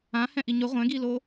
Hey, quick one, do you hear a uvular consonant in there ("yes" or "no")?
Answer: yes